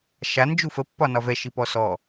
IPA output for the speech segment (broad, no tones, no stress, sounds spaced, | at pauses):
ʃ a n d͡ʒ u f ə pː ɒ n ɒ v ɛ ʃ i p ɔ s ɔ